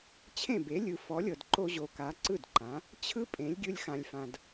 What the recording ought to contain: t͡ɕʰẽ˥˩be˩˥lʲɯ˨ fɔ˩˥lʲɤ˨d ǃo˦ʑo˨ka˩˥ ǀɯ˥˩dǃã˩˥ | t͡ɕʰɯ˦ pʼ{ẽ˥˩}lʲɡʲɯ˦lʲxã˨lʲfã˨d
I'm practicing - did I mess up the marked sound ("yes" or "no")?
yes